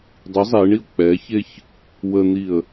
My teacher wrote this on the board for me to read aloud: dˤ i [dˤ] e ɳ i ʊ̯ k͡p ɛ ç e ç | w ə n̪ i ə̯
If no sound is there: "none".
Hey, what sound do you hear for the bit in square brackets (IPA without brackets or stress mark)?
zˤ